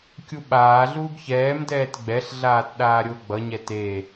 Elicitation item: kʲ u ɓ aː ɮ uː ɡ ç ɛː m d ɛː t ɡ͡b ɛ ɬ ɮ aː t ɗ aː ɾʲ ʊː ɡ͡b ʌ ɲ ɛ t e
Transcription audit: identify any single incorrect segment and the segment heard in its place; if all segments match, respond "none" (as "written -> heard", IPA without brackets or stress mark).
none